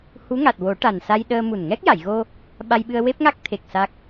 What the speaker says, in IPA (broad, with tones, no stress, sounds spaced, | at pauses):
h u˧˥ ŋ a˨˩ t̚ w o˨˩˦ ʈ a˨˩ n s a˧ j ɗ əː˧ m u˨˩ n ŋ ɛ˦˥ k̚ j a˨˩˨ j ɣ o˧ | ɓ a˧ j ɓ ɨ˧ ə̯ w e˦˥ p̚ ŋ a˦˥ k̚ t̪ʰ e˨˩ k̚ s a˦˥ k̚